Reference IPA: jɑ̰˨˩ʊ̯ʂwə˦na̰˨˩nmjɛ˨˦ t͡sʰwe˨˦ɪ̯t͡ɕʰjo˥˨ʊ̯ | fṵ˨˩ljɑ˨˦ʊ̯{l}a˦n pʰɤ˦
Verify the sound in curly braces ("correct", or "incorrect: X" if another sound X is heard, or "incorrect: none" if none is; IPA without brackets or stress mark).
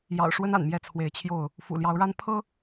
incorrect: ɻ